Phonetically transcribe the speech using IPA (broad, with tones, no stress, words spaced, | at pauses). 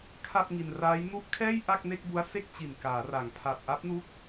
kʰa˥˩p̚ŋi˧nraː˦˥j nu˦˥ʔkʰɛː˥˩j ʔa˥˩k̚ne˥˩k̚bu˦˥a̯ se˥˩k̚t͡ɕi˨˩n kaː˩˦ ra˩˦ŋpʰa˨˩p̚ʔa˦˥p̚nu˦˥k̚